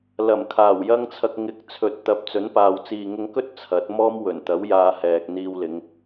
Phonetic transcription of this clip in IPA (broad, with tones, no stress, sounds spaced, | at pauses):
l ɐ˨˩ m kʰ aː˨˩ w j ɐ˥ ŋ t͡sʰ ɐ˧ k̚ ŋ ɪ˨˥ k̚ t͡sʰ ɵ˨ t̚ t̪ ɐ˨˥ p̚ t͡s ɵ˨˥ n p aː˨ w t͡s iː˨ ŋ ʊ˧ ŋ k ɵ˥ t̚ t͡sʰ ɐ˨˥ t̚ m ɔː˥ m w ɵ˨˩ n t̪ ɐ˨˥ w j aː˧ h ɛː˨ k̚ n̪ iː˧ w l ɪ˨˧ ŋ